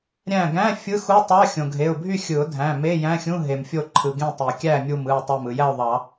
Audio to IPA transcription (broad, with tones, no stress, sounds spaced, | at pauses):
ɾʲ æ̃˧˩ ɡ æ̃˧˥˧ fʲ ɯ˧˥˧ x u˧˥˧ tˤ ɑ˧˥˧ xʲ õ˩ ɡʱ e˩˧˩ ʊ̯ bʱ y˥˨ xʲ ɯ˨˩˦ ʊ̯ dʱ æ̃˩˧˩ m e˧˥˧ j æ̃˧˥˧ xʲ ũ˧˥˧ ɦ e˩ m fʲ o˧˩ ǃʰ ɯ˩ ɡ ẽ˥˨ tˤ i˩ kʲ æ˥˨ mʲ u˧˩ m ɯ˧˩ ʊ̯ tˤ æ˧˩ m ɯ˩ j æ˥˨ ʊ̯ ðˤ ɑ˨˩˦